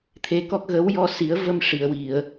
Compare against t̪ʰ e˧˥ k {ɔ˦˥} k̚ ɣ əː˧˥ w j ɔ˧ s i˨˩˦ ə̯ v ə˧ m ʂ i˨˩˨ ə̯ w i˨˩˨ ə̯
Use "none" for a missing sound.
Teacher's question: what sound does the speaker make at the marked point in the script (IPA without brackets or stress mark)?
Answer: ɔ˦˥